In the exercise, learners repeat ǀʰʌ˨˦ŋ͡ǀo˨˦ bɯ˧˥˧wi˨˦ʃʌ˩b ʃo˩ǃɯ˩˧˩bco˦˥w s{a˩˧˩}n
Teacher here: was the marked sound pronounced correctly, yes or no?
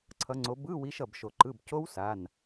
yes